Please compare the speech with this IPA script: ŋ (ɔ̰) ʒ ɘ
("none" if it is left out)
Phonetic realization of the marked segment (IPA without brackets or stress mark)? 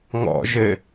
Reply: ɔ̰